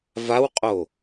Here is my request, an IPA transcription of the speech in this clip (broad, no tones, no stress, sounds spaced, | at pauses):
v a w qʼ o